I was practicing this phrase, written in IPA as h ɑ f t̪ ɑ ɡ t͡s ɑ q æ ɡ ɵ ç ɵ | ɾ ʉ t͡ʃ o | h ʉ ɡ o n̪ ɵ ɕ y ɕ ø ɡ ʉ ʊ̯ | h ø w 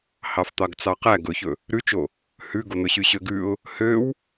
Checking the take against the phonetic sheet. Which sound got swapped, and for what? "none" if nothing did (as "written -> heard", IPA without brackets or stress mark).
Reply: none